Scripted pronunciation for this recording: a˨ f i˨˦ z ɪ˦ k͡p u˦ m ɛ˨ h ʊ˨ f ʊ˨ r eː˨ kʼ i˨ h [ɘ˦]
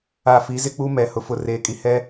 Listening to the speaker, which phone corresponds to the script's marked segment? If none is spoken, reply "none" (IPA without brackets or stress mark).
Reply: ɛ˦